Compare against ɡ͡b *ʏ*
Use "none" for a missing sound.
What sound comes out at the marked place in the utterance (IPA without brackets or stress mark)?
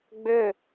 ʏ